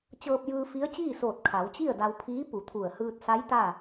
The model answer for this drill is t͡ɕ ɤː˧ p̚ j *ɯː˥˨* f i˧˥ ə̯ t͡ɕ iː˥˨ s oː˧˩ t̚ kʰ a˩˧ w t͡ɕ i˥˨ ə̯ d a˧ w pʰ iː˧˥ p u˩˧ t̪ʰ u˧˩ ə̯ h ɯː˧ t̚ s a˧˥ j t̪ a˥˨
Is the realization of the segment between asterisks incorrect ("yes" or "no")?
yes